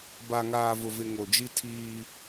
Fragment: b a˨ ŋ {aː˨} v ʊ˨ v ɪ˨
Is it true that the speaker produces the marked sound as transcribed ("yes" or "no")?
yes